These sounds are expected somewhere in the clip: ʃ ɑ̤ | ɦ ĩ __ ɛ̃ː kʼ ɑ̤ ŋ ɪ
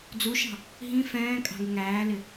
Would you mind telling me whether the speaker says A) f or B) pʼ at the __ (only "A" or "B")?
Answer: A